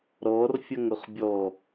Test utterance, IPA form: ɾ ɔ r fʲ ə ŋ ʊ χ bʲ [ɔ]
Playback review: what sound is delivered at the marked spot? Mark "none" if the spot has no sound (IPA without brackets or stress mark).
ɔ